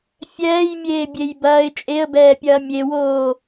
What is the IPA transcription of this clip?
fʲ ɛː j mʲ eː bʲ e j b ɐː ɪ̯ t͡ʃʼ e ə̯ b ɛː pʲ ɐː mʲ e w oː

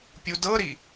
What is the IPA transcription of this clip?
pʲ u d ɤ ɾ i

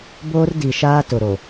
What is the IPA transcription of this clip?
b oː˦ r d i˨ ʃ aː˦ t ʊ˨ ɾ o˨

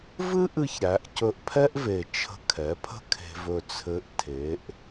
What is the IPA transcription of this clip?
v ɨ˥ ʔ ɨ˧ ç ɾ æ˩˧ ʔ c ɵ˧ ʔ pʰ ɛ˥ ʔ v e˨˩ t͡ʃʰ ə̤˧ kʰ ɛ˩˧ pʰ ə̤˥ kʰ e̤˧ v ɵ˧ t͡sʰ ɘ˧˥ ʔ tʰ e˩˧ ʔ

